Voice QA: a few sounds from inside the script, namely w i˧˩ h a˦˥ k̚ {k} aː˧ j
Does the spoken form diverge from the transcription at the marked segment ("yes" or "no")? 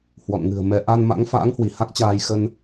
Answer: yes